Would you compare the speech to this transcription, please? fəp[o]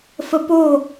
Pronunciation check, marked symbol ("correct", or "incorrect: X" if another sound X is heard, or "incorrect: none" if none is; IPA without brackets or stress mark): correct